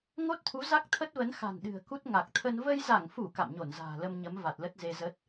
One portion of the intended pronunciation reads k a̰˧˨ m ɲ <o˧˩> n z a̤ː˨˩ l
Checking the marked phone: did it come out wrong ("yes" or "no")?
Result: no